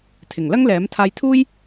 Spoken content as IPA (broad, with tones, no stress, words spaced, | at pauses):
t̪ʰɪ˨˩ŋlɐ˥ŋlɛː˨˥m t̪ʰaː˧jt̪ʰuː˥j